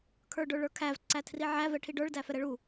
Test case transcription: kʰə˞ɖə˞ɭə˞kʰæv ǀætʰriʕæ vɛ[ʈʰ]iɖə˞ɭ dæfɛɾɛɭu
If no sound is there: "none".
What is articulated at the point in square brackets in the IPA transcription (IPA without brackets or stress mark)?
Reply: ʈʰ